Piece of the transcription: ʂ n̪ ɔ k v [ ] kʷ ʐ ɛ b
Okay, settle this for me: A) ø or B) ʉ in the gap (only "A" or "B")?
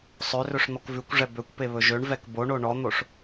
B